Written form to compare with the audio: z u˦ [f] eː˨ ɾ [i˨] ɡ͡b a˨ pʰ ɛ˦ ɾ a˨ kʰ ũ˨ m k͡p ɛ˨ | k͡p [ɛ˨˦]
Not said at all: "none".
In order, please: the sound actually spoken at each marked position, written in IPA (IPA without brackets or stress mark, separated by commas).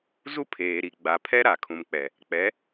pʰ, i˨, ɛ˨˦